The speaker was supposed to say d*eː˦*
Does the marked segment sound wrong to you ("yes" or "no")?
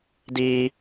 yes